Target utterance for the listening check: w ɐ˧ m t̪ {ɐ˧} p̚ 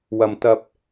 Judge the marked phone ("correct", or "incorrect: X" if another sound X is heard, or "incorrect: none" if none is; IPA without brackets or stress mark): correct